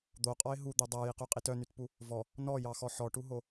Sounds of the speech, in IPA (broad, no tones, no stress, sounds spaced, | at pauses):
d̪ o qʼ ɔ ɪ̯ ɦ u d̪ e dˤ æ j i q ʉ qʼ i t œ n y t p u | v ɔ | n ɔ j ɑ x ɔ ħ ɔ ʈ u ɦ o